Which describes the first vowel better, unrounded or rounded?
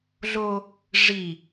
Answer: rounded